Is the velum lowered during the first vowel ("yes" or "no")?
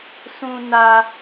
yes